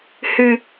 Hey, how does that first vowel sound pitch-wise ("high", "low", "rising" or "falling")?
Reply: low